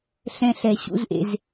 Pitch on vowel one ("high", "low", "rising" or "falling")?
high